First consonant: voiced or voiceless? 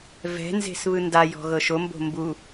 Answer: voiced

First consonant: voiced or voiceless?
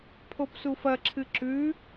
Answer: voiceless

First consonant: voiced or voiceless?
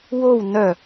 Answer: voiced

